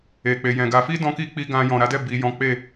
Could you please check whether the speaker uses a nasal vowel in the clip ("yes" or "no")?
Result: yes